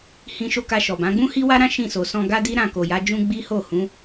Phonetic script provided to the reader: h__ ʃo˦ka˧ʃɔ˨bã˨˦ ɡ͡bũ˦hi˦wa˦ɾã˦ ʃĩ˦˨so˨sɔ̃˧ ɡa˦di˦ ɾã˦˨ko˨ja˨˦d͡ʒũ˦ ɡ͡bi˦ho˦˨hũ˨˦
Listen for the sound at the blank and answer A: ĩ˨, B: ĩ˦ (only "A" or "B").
B